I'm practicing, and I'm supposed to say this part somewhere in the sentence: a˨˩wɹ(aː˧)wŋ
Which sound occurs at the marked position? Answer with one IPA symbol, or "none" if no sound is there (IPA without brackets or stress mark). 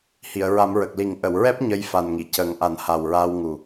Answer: aː˧